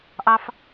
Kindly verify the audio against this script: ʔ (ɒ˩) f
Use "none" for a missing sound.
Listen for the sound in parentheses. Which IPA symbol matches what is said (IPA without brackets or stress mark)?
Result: ɑ˩